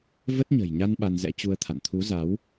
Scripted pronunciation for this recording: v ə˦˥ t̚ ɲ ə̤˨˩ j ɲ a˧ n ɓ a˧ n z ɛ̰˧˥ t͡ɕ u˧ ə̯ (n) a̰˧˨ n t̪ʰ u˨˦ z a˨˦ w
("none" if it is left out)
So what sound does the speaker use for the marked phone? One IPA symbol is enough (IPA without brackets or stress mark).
t̪ʰ